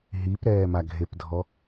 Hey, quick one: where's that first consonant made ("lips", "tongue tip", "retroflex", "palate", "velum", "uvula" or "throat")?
throat